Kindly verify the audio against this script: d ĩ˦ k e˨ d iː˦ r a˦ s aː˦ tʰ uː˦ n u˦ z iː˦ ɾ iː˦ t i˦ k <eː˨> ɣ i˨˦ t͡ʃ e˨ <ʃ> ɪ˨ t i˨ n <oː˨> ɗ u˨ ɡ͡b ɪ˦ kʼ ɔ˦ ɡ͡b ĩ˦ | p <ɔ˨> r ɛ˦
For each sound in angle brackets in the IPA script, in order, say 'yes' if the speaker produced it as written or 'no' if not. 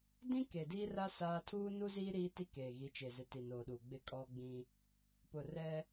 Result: yes, no, yes, no

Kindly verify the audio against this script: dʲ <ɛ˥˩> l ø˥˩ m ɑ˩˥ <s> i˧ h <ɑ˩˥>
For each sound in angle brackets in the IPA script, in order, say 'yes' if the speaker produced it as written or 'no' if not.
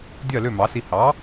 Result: no, yes, yes

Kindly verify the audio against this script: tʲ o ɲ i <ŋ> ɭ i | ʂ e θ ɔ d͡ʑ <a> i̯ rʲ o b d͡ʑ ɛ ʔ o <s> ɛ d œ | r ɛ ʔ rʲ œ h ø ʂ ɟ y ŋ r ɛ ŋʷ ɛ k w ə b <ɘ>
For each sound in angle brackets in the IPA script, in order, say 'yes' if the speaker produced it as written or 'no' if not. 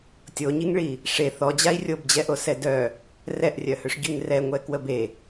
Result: yes, yes, yes, no

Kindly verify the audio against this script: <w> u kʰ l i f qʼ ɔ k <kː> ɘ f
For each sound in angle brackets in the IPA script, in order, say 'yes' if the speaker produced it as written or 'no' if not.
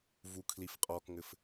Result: no, no

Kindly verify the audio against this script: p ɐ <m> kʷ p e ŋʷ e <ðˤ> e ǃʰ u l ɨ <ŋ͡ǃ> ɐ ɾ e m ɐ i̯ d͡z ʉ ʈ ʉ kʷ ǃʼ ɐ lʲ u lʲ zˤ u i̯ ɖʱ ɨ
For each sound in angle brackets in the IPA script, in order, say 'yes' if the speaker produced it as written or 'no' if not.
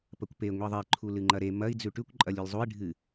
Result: no, yes, yes

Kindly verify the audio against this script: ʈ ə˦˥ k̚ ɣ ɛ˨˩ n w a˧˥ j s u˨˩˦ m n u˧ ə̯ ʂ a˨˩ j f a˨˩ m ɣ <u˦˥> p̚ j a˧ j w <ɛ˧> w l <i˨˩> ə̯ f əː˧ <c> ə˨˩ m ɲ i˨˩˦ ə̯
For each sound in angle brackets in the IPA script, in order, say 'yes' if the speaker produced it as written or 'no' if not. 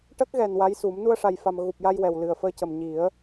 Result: no, no, no, yes

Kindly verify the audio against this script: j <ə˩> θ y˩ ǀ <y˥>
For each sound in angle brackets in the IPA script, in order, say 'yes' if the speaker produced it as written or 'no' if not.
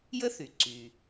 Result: no, no

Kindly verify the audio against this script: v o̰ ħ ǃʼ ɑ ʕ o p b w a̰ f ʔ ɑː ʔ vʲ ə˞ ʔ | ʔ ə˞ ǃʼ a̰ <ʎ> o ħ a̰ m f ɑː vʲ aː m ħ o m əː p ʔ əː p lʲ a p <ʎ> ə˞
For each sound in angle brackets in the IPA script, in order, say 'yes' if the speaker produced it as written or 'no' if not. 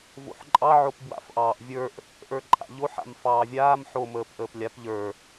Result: yes, yes

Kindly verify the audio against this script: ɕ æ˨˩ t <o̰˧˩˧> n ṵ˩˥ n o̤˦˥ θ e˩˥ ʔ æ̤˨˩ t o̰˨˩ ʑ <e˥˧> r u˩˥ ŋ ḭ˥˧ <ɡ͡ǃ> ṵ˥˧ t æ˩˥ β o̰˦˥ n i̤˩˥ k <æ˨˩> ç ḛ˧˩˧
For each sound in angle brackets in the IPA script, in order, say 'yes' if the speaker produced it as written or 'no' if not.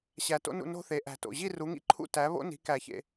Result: no, no, no, no

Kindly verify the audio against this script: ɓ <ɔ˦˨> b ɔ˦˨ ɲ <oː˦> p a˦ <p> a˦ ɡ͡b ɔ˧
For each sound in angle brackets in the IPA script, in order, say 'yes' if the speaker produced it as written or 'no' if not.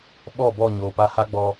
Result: yes, no, no

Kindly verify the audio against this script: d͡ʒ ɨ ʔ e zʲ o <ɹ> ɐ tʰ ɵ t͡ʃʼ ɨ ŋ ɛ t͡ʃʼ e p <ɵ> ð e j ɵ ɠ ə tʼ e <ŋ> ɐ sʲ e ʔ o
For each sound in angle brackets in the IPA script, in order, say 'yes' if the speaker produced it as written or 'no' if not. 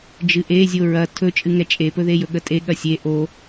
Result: yes, yes, no

